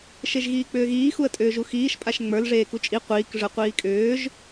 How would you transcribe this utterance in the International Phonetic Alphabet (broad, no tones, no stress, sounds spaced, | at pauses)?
ʃ e ʒ ɣ iː k͡p ʏː ɣ iː x u ə̯ tʼ ʏː ʒ u x iː ʃ pʼ a ʃ ŋ͡m ə˞ l ʐ eː k u t͡ʃʼ i qʷ iː k ʐ ə˞ qʷ iː kʼ ʏː ʒ